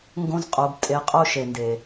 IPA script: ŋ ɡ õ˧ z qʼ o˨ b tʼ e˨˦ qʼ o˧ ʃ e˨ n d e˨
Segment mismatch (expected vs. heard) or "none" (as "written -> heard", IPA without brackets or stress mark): none